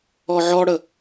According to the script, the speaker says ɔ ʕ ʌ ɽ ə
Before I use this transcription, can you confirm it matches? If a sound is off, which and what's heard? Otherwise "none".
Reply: ʌ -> ɔ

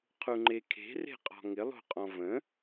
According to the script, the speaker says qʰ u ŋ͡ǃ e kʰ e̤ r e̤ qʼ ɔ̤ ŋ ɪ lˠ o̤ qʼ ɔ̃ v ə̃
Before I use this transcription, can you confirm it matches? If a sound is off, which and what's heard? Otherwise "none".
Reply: none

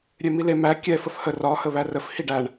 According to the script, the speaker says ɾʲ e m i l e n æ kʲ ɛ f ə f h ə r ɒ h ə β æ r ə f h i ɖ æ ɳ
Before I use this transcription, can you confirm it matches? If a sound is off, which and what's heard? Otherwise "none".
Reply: n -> m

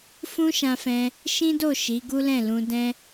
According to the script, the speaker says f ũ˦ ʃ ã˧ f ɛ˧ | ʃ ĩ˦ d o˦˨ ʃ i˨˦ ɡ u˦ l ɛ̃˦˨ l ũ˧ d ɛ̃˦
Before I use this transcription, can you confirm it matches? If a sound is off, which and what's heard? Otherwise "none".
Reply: ɛ˧ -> ɛ̃˧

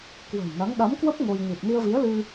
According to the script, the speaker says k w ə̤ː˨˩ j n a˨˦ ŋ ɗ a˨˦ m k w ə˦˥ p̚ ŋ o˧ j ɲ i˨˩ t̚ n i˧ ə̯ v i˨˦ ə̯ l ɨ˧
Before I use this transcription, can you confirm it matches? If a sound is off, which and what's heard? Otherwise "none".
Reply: none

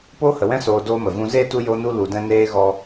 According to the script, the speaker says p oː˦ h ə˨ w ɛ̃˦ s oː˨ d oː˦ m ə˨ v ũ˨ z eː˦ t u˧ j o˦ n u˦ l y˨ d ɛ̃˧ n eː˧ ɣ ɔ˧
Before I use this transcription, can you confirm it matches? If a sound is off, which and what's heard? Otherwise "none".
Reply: y˨ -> u˨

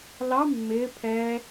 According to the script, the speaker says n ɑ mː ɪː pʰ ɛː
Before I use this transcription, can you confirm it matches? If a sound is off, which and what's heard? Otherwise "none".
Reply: n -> l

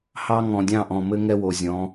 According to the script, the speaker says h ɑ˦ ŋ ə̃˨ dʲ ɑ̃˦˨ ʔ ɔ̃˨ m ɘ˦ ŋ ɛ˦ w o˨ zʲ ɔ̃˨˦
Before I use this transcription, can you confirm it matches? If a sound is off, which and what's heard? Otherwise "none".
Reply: ə̃˨ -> ɔ̃˨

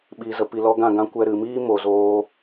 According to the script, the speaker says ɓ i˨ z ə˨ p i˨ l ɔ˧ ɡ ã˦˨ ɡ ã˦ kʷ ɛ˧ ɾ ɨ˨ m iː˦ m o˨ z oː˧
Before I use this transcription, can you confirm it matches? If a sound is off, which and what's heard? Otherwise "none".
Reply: none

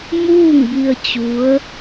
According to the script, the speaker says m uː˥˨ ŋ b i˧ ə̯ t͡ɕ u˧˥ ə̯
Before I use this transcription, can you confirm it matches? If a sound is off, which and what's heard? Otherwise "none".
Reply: none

